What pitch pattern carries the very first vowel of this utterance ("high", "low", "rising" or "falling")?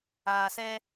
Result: low